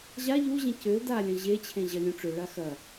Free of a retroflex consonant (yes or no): no